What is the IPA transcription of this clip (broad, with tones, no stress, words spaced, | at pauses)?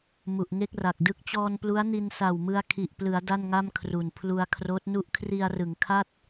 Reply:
mu˨˩ʔŋe˥˩k̚ra˨˩k̚dɯ˥˩k̚ t͡ɕɔː˧nplu˦˥a̯ni˧n sa˨˩wmɯ˧a̯kʰi˨˩ʔplɯ˩˦a̯ da˥˩nŋa˥˩mkʰru˨˩n pʰlu˧a̯kʰroː˦˥t̚nu˥˩ʔ kʰri˧a̯rɯ˩˦ŋkʰa˥˩t̚